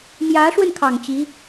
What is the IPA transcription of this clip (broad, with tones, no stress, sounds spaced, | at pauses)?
m j ä˧˥ ʂ w ə˧ n kʰ ɑ˨˩ ŋ t͡ɕ i˧˥